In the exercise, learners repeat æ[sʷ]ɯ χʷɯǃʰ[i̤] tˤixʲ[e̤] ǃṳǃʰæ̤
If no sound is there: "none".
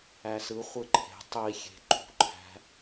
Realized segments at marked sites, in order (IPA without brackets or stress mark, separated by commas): s, e̤, e̤